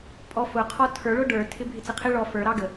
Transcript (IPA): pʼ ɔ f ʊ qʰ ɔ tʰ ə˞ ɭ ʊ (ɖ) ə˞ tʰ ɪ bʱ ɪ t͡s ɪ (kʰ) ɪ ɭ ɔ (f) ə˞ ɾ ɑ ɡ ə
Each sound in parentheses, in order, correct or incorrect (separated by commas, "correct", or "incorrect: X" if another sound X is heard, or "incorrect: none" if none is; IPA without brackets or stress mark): correct, incorrect: qʰ, correct